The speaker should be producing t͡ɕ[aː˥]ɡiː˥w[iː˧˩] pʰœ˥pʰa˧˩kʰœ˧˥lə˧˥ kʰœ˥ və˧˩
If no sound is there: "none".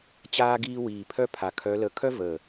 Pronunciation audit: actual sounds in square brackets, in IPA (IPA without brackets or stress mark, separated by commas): aː˥, iː˧˩